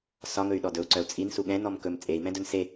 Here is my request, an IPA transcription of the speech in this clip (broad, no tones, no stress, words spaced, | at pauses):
sɒŋɵy̯ɗɔ dɵu̯ǀœu̯ t͡sʼinsu ɠɛ̃nɔm kɵm t͡sʼei̯mɛ̃dɵn se